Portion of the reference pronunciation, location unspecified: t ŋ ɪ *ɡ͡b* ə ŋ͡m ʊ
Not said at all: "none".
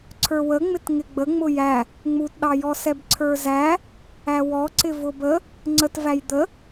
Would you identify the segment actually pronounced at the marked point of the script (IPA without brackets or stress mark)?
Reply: ɡ͡b